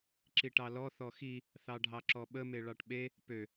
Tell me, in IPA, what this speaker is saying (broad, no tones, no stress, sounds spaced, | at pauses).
ǁ i ʈ ɑ l ɔ θ ɔ x i | θ ɑ ɖʱ ɑ ǁ ɔ ɓ ə m e ɭ ɑ ʈ ɓ e | p ø